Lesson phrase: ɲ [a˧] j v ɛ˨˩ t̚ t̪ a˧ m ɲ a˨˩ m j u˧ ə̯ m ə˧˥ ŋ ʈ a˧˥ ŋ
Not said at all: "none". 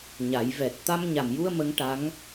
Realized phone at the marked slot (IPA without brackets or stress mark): a˨˩˦